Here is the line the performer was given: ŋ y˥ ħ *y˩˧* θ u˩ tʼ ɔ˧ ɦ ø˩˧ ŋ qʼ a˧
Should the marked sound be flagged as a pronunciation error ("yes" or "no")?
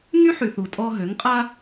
yes